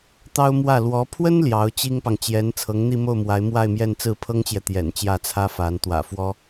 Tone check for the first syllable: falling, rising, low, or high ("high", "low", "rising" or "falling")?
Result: high